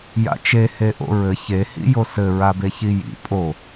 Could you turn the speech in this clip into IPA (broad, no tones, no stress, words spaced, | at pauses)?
ja̰t͡ʃe heʔo̰ɹɘ çehḭ josɘɹabe çijḭ pʼo